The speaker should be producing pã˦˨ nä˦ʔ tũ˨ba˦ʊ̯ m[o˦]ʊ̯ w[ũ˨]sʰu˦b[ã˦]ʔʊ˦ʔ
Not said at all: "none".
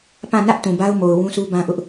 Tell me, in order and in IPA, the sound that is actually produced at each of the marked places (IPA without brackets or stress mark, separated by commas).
o˨, ũ˦, ã˦